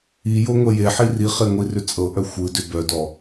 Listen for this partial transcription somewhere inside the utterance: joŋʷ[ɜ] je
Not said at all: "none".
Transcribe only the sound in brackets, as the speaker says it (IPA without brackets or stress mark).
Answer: ɛ